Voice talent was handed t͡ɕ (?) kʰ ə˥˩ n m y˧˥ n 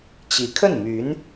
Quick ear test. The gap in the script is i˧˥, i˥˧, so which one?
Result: i˧˥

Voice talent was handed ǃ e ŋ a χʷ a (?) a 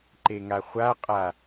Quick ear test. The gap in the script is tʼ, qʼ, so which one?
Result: qʼ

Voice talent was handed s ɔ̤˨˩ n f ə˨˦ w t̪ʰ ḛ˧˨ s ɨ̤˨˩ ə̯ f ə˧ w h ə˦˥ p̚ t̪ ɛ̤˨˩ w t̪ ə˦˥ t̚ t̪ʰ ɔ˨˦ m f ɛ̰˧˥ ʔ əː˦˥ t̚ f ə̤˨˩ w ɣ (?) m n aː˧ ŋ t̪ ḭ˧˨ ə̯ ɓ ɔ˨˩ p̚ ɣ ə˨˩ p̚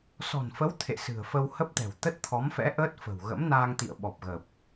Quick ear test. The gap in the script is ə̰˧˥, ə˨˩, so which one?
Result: ə̰˧˥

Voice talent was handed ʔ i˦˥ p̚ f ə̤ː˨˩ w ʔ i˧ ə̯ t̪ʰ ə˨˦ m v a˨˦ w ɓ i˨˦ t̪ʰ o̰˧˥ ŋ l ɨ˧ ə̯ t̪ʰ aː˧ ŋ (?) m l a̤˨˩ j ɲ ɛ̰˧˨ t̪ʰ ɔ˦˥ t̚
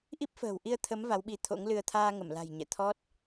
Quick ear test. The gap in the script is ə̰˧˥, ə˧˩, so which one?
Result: ə˧˩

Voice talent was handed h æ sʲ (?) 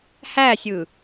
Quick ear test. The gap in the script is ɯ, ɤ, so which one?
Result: ɯ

